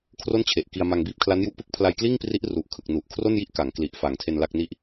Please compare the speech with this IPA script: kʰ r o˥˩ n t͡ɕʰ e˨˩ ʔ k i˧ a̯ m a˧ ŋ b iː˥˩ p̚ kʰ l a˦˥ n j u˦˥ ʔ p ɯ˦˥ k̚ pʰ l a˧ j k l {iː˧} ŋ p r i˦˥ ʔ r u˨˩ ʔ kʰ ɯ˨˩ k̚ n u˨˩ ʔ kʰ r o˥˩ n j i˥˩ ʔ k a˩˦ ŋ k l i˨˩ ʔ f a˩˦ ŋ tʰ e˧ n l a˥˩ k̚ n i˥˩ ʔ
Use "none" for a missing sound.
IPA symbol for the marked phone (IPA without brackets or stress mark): iː˥˩